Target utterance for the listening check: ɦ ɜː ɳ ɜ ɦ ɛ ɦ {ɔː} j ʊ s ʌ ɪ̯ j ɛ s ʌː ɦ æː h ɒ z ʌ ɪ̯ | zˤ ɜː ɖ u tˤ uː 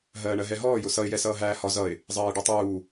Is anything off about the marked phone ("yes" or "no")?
no